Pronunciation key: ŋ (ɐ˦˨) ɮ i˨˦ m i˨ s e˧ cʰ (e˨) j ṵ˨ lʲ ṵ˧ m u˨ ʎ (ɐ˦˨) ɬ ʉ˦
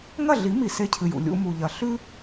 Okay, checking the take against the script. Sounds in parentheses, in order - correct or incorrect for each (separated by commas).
correct, incorrect, incorrect